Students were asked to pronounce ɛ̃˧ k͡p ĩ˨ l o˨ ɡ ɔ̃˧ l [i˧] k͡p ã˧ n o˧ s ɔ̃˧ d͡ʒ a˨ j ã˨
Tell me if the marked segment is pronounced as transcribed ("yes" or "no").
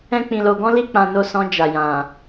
yes